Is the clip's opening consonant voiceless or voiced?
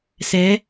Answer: voiceless